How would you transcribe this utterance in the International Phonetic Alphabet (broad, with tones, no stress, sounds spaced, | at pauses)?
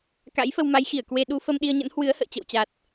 k a̰˧˥ j f ə˧ w m a˨˦ j x i˧˩ ə̯ k w e˧ ɗ u˨˦ f ə˧ m ɗ i˧ ə̯ ɲ ə̰˧˥ n h w ɨ˨˦ ə̯ h ə̰ː˧˨ t͡ɕ ə̰˧˨ w t͡ɕ a˨˩ t̚